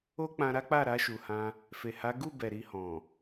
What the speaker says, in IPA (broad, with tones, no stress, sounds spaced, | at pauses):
o˦ k͡p ã˧ ɾ a˦ k͡p a˦˨ ɾ a˧ ʃ u˨ h ã˧ | f e˨ h a˨˦ ɡ u˦˨ b ɛ˨ ɾ i˧ h ɔ̃˨